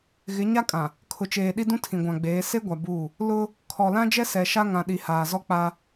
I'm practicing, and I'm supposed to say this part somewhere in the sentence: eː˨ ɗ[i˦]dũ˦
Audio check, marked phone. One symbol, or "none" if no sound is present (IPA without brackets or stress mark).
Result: i˦